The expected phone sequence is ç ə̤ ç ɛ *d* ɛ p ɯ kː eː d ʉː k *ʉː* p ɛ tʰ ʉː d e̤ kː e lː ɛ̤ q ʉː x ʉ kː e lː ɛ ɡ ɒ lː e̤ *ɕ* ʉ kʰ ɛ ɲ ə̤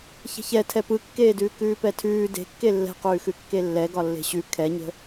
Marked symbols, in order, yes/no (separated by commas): no, yes, yes